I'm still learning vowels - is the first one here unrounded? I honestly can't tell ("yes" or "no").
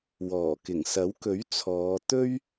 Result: no